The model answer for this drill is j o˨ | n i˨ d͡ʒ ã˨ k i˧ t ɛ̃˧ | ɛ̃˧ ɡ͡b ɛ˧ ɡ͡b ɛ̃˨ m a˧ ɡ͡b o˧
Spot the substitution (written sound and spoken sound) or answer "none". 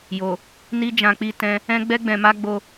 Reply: k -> k͡p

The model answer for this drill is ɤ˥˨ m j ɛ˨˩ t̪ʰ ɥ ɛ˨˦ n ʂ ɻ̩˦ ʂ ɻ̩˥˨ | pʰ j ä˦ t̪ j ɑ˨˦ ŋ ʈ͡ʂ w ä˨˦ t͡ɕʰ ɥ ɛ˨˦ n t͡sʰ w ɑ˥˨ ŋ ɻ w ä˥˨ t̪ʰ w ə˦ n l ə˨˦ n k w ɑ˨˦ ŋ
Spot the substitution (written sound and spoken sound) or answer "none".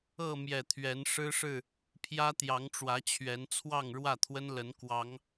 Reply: none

